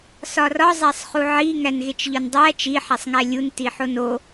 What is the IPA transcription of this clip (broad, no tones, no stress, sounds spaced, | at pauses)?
s ɒ r ɒ zˤ æ sˤ χ u ʕ i ŋ æ n ɣ e t͡ʃ ʎ ɒ n dˤ æ t͡ʃ i ħ æ sˤ ŋ æ lʲ u n t i ħ o n o